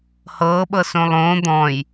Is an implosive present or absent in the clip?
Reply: present